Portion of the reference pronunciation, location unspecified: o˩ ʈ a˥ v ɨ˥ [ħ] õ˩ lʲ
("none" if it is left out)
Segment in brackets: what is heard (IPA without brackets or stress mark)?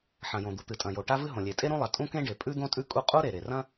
ɦ